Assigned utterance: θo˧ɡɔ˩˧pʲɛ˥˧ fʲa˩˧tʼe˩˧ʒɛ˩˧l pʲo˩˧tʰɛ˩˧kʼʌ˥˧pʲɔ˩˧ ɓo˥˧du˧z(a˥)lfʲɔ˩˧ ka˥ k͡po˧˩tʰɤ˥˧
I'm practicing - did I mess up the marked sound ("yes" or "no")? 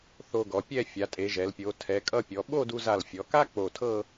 yes